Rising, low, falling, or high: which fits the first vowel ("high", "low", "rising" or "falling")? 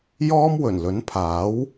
high